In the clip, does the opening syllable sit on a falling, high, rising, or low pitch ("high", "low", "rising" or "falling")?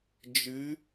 rising